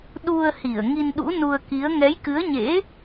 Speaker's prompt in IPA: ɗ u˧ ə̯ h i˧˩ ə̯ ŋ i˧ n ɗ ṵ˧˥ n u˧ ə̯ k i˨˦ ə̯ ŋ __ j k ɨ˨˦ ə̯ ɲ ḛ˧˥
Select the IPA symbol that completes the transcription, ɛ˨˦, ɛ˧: ɛ˨˦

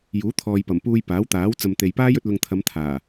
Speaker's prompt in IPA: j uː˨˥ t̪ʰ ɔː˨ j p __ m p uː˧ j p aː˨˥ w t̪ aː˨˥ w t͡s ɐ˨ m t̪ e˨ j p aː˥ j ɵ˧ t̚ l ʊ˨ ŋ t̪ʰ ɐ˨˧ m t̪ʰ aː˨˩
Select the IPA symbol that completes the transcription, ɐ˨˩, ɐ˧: ɐ˨˩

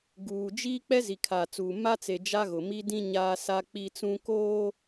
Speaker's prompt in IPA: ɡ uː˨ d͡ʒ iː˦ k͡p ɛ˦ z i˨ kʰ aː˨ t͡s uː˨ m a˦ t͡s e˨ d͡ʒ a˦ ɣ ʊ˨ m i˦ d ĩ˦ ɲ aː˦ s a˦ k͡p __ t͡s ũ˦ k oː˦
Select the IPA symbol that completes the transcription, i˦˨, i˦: i˦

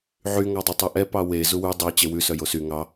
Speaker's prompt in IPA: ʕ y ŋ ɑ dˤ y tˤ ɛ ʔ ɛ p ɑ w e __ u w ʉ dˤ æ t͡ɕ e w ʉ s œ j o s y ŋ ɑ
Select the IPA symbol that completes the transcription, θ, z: z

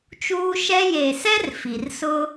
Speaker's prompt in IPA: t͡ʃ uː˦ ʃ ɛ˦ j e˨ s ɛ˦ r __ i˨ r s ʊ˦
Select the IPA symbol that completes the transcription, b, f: f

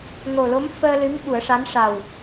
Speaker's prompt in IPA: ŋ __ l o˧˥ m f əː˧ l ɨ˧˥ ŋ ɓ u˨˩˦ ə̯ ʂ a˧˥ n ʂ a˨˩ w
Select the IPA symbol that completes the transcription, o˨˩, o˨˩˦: o˨˩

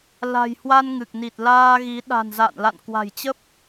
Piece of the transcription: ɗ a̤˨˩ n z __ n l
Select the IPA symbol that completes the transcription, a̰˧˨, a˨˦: a̰˧˨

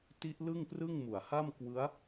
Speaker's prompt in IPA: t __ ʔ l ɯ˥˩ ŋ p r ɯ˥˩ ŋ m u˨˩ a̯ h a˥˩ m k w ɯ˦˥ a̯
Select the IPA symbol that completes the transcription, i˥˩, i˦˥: i˦˥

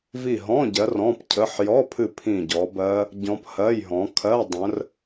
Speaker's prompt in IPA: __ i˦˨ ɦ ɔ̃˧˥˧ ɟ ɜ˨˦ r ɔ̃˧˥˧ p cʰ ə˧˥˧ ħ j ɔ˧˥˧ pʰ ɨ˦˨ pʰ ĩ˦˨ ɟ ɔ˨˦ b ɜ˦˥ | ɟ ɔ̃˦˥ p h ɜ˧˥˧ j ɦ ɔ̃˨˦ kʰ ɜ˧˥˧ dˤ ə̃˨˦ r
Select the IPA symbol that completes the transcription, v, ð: v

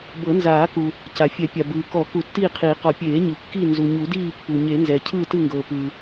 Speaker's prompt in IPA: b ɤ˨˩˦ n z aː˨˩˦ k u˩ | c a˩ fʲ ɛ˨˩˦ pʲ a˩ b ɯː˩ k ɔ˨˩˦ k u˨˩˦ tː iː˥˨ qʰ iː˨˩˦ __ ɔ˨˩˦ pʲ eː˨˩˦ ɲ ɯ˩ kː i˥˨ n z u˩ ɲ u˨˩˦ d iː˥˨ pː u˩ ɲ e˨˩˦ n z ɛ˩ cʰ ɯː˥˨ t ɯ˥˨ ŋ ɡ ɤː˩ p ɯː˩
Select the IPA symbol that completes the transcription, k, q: q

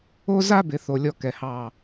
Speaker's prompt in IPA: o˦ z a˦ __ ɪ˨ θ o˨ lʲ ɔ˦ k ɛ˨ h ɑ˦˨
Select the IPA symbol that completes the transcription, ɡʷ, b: b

